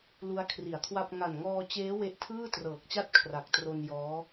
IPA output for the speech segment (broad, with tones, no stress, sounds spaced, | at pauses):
l u˦˥ a̯ kʰ r i˩˦ a̯ kʰ w a˥˩ p̚ ŋ a˨˩ n ŋ ɔː˧ t͡ɕ eː˦˥ w e˦˥ ʔ tʰ ɯː˥˩ t r ɤː˨˩ k̚ t͡ɕ a˥˩ t̚ kʰ r a˨˩ k̚ t r o˧ n j ɔː˦˥